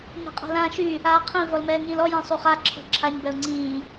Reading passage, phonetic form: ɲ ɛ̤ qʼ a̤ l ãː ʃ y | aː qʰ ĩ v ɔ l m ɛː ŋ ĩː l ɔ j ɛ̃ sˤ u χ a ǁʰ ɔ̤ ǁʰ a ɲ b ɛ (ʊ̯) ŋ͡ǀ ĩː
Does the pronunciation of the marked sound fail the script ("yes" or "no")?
no